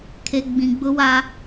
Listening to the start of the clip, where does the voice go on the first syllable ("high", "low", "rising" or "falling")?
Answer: low